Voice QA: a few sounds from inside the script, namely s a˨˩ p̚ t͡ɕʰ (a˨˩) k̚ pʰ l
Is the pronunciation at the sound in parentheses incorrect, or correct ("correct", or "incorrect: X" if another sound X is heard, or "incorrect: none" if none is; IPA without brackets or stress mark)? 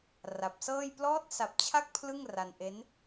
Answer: incorrect: a˦˥